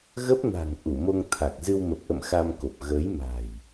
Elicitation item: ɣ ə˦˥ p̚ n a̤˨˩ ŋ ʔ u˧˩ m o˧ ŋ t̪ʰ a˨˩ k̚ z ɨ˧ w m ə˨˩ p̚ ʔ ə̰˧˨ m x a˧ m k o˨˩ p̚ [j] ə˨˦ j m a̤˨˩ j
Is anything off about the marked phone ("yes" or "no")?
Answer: yes